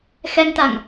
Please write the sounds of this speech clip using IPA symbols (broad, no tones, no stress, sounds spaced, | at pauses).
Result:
x ɛ ŋ t a ŋ